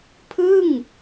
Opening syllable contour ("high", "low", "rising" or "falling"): falling